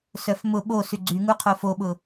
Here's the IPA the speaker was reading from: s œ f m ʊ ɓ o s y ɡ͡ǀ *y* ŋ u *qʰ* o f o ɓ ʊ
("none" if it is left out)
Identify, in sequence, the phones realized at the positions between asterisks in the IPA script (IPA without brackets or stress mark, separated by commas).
y, qʰ